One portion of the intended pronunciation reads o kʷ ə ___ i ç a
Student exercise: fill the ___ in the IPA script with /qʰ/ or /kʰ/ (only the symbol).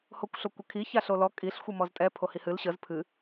kʰ